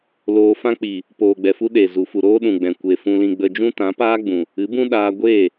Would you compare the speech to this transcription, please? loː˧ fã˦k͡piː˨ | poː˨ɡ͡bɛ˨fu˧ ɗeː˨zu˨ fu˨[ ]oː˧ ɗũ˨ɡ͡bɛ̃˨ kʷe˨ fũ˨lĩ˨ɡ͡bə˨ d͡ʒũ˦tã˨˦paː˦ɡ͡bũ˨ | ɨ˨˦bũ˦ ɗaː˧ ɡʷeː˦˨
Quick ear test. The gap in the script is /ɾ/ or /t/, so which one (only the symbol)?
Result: ɾ